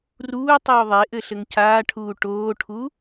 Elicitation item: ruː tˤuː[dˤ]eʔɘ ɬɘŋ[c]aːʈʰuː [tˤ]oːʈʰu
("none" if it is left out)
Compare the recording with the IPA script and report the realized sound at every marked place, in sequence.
ðˤ, c, ʈ

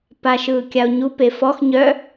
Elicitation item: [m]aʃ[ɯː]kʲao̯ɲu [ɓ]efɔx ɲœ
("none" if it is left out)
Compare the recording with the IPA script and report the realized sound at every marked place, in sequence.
p, ɯː, p

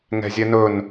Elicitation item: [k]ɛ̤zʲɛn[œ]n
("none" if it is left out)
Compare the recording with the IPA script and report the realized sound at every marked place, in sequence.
ŋ, ɵ

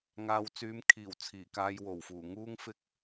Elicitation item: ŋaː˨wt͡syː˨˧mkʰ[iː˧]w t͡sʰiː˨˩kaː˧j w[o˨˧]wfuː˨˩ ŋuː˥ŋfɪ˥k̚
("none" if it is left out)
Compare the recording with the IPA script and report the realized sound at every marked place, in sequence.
iː˨˩, o˨˩

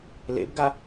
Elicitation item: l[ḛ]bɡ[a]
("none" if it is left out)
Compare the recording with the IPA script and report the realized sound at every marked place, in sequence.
ḛ, a

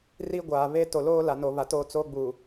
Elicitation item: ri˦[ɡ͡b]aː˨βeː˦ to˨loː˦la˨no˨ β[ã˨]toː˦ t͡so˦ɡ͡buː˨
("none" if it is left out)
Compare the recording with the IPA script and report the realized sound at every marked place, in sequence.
ɡʷ, a˨

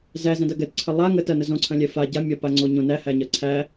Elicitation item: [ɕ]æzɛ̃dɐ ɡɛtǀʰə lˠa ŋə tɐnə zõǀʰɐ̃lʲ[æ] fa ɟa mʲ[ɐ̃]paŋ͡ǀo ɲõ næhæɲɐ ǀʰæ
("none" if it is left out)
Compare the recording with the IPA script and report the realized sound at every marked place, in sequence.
z, ɛ, ɐ

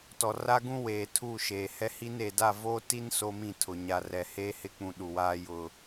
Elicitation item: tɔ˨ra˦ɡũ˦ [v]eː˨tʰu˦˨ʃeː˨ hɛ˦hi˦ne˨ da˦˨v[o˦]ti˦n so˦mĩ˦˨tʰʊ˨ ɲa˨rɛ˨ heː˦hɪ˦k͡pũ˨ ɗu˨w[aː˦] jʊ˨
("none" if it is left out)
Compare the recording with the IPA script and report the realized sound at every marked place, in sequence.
w, o˦, aː˦

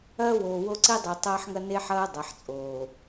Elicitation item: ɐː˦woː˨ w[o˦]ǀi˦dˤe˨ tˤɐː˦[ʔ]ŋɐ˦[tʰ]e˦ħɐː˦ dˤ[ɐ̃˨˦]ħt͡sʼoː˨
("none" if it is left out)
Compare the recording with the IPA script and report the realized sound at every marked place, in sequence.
o˦, ħ, n, ɐ˨˦

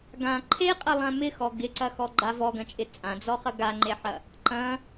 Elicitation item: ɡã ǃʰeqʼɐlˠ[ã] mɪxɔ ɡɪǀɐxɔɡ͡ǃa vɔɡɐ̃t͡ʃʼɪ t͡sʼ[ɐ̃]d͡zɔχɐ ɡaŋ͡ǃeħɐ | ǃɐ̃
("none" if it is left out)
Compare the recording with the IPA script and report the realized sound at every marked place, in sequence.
ã, ã

